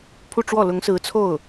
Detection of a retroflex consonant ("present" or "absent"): present